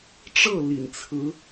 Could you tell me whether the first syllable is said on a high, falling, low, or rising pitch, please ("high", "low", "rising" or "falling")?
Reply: falling